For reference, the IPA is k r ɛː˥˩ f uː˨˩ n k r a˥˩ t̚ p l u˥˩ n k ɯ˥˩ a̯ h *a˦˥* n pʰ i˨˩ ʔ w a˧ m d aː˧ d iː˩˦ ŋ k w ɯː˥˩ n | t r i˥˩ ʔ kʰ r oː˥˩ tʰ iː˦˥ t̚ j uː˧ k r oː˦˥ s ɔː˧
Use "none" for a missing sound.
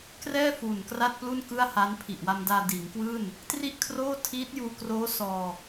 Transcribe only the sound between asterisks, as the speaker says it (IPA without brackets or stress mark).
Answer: a˦˥